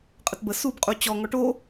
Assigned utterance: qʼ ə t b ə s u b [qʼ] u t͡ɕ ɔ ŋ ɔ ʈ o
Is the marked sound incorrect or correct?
correct